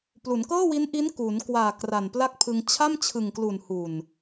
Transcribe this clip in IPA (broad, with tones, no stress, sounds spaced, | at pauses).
p l u˩˦ n k ɤː˥˩ w i˦˥ n ʔ i˦˥ n k u˩˦ n k w aː˨˩ k r a˨˩ n p l a˥˩ k̚ pʰ ɯ˧ ŋ t͡ɕʰ a˥˩ m t͡ɕʰ ɯ˨˩ ŋ k l u˨˩ n h u˨˩ n